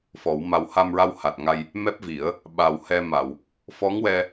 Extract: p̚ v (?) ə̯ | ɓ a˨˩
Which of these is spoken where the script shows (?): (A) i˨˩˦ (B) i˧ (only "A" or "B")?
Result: A